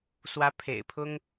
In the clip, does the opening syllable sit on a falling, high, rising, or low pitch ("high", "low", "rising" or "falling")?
rising